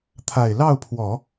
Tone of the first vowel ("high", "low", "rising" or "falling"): low